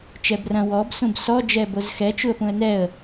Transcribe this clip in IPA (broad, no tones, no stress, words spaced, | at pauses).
t͡ʃɛbrɐ̃ wɔb sũbsɔ d͡ʒɛːbozxɛ t͡ʃuə̯pũə̯nɛə̯